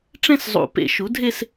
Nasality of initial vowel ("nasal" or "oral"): nasal